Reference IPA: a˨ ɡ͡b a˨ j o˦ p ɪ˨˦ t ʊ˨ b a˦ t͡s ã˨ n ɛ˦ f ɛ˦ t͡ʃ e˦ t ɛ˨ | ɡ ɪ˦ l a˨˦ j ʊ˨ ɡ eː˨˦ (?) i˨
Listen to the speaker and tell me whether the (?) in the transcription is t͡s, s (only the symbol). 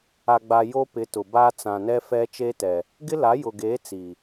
t͡s